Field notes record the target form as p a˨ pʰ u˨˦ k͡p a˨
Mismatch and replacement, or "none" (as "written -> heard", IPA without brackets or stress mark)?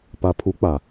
none